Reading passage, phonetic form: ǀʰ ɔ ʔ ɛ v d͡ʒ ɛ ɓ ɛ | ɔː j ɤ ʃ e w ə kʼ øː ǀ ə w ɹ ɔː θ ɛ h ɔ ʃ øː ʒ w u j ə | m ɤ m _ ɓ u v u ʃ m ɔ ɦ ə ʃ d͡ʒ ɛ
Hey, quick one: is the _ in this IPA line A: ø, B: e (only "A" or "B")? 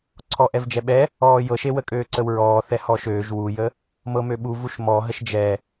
A